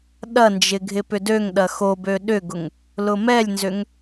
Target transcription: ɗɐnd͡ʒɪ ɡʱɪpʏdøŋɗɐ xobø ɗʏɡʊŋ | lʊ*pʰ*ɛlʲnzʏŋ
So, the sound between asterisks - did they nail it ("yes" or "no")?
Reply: no